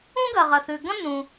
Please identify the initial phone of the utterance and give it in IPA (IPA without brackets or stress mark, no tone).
ũ